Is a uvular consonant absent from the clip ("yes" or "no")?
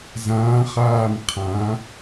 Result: no